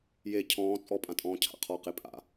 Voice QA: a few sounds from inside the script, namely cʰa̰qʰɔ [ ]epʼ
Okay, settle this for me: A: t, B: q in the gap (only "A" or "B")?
B